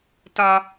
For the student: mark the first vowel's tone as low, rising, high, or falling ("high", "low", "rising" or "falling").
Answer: low